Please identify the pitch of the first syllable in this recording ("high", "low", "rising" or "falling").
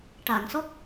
low